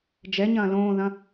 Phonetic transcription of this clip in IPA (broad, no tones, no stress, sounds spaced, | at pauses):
d͡ʒ ɛ ɲ ɐ̃ː l õː ð ɐ̃